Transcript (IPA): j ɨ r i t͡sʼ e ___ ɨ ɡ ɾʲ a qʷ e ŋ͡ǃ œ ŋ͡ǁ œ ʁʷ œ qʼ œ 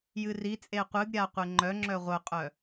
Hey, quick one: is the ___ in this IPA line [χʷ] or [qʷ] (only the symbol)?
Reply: qʷ